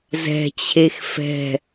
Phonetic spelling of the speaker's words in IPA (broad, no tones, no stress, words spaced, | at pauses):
zɛ̤t͡ɕʰex fɛ̤